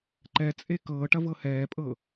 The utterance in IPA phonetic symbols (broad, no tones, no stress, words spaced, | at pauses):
ǃɛt͡sʼe kɤːʈɐ vɤhɛːpʼɤ